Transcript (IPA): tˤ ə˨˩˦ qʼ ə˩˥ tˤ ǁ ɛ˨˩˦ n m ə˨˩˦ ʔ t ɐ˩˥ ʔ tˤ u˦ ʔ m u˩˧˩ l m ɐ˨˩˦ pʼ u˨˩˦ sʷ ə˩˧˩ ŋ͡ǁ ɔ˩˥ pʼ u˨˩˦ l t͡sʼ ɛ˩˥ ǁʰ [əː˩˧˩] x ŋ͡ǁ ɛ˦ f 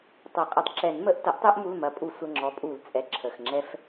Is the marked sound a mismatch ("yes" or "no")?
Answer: yes